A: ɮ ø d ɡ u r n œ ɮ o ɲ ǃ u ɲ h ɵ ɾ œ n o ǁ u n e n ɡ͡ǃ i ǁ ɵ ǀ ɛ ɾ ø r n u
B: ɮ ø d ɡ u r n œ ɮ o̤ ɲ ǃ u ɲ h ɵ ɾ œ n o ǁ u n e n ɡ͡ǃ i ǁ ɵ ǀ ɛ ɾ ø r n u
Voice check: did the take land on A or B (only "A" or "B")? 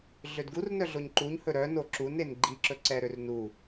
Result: A